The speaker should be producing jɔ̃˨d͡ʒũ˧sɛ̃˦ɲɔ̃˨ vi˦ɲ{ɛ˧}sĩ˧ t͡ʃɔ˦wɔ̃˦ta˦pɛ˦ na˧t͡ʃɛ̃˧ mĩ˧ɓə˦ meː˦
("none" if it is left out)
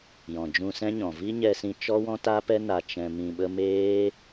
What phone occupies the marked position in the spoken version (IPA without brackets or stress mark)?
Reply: ɛ˧